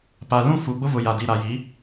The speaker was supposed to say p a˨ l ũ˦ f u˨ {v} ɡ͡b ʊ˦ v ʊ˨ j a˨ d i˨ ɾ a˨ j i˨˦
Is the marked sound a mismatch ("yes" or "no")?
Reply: yes